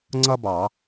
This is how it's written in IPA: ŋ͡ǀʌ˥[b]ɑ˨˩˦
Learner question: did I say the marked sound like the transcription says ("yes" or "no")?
yes